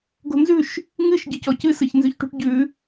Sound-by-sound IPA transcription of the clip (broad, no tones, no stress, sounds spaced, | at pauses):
ɡ o̤ n z ʉ ʃ | ŋ ɨ ʃ ɟ ɨ c ɔ c ɨ s ɨ ç n z ʉ ç ʈ ṳ ʈ ɟ ʉ